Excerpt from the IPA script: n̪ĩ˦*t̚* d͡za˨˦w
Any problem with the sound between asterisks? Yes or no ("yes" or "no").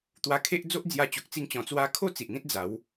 no